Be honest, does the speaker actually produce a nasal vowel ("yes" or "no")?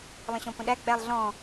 yes